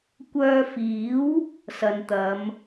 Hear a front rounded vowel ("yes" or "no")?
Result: yes